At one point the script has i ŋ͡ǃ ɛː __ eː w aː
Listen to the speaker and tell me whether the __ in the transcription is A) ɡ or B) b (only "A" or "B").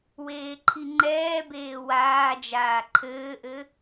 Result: B